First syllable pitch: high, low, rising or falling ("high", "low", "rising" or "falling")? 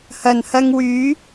low